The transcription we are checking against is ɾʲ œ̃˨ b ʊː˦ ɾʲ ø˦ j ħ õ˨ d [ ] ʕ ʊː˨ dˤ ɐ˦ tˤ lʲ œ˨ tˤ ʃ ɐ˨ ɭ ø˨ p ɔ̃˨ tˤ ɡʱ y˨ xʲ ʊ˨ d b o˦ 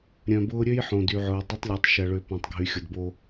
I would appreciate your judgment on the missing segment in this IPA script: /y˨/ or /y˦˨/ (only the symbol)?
y˨